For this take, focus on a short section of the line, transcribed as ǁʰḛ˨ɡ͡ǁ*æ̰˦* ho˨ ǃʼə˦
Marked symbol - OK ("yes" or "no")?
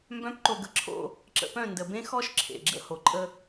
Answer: no